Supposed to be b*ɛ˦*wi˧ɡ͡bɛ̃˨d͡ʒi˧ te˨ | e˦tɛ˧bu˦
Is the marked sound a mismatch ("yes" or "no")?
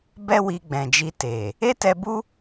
no